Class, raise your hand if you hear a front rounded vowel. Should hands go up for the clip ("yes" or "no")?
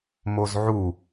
no